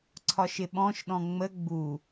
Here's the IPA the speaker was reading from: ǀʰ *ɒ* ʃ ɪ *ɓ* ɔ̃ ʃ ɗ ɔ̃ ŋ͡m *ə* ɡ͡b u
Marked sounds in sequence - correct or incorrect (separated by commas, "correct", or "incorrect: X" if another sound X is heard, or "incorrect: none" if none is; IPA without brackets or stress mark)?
correct, correct, correct